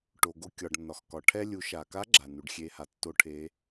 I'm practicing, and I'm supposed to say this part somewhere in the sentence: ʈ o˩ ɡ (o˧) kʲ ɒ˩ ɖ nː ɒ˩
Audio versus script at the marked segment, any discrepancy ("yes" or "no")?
no